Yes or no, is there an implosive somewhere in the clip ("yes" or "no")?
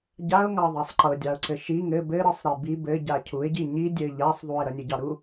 no